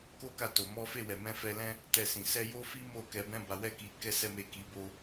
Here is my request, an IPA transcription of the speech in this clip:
k o˦ k a˦˨ t o˨ m ɔ˨˦ f e˦˨ w ɛ˨ m ɛ̃˨˦ f ɛ˧ l ɛ̃˦ | t ɛ˧ s ĩ˨ s ɛ˧ j o˦ f i˦ m o˦˨ k ɛ˧ b ɛ̃˦ b a˧ w ɛ˦ k i˧ k ɛ˦ s ɛ˦ m e˦˨ k i˨˦ b o˧

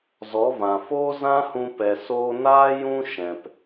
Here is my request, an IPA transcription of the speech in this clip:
z ɔ˨˦ v ã˨ f o˦ z ã˦ h ũ˧ p ɛ˨ s oː˧ n aː˦ j ũ˦ ʃ ɛ̃˨ p

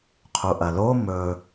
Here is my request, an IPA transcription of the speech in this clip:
qʰ u ʔ ɐ l o m ɵ

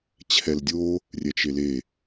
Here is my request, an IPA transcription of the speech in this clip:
t͡ɕʰ ɛ l dʲ o | rʲ ɛ t͡ʃ e l e

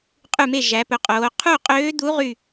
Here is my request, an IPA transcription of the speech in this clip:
qʼ ʉ˥˨ m e˥˨ ʒ æ˩˧ p ɵ˩˥ qʼ oː˩˧ qʰ u˥˨ qʼ øː˧˥ d̪ u˧˥ ʁ y˥˨

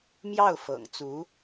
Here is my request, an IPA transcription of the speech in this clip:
m j ɑ˥˩ ʊ̯ f ɤ̰˨˩ ŋ t͡s u˧˥

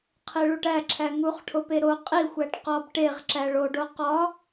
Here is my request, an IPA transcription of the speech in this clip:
qʰ e ɭ u ʈ æ ǁʰ æ ŋ u χ ʈʰ o p e ɾ o qʼ i xʷ æ ʈ q ɒ b ʈ e ʁ ǁ æ ɭ o ɖ o q ɒ

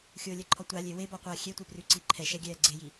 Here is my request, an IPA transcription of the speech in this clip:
xʲ ʊː lʲ ɛ ǃʰ ɔ tʷ a lʲ e w e b ɔ qʷ aː xʲ e tʷ e p r ʉ ǀ i ǃʰ ɛ ʃ ɛ ɡʲ ɛː ɡ͡ǀ e j i

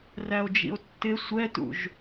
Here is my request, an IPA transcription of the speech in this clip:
r æ o̯ d͡ʒ ḭ o̯ tː ɪ sʷ ɛ t ṵ ʒ

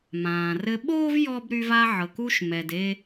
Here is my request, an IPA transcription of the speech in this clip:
m ãː˩ r ɘ˧ ɓ oː˥ v j ɔ˥ b ɾ y˧ v a˧ ʕ ɤ˩ k u˧ ʃ m ɛ˩ d e˧

